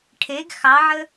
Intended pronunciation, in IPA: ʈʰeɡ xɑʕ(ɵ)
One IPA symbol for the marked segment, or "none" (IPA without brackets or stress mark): ə